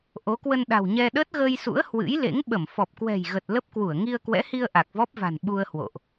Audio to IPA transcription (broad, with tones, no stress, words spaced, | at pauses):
ʔo˨˦kwə˧nɗa̤˨˩wɲɛ˧ ɗəː˦˥t̚ɣəː˧jsṵ˧˥ə̯ hwɨ̰˧˥jlḛ˧˥ŋ ɓə˧˩m fɔ˨˩p̚kwɛ̤˨˩jɣə˨˩t̚ lə˦˥p̚kwu˧˩ə̯ ŋi˧ə̯kwɛ̰˧˥hi˧ə̯ ʔa˨˩k̚vɔ˦˥p̚va̤˨˩n ɓu˧ə̯hwo̰˧˨ʔ